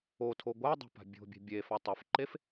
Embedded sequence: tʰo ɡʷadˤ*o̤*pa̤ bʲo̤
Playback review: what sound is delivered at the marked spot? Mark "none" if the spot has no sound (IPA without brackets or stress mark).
o̤